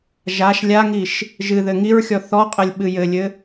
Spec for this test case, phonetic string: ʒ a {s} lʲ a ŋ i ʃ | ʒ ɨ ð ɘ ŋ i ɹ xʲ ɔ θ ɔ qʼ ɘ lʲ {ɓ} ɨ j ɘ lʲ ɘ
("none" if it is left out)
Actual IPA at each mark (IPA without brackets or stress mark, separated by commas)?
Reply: ʃ, ɓ